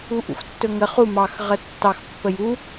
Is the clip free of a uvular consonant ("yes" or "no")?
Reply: no